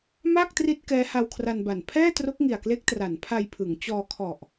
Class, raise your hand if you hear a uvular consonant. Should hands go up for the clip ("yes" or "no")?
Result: no